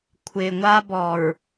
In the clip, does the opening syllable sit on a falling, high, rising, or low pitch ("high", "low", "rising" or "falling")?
low